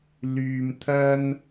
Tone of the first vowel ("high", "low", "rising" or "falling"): low